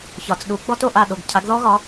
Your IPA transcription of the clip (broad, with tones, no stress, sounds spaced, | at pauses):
ç ɒ˩ t͡s ɗ u˩˥ ɡ͡b ɔ˥ t o˥˩ ʔ a˥˩ ɗ o˩ ɡ cʰ a˩˥ ɡ ð ɔ˥ ɣ ɒ˩˥